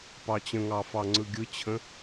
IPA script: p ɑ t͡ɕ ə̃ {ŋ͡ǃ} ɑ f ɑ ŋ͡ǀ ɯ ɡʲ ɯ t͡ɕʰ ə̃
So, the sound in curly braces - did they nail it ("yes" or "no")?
no